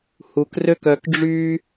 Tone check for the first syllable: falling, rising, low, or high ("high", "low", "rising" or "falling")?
low